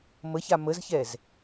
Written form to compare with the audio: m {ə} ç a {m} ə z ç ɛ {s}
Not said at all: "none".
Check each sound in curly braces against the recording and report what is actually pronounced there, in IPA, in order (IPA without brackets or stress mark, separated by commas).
ə, m, z